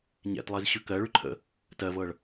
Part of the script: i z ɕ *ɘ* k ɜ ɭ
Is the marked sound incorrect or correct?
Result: incorrect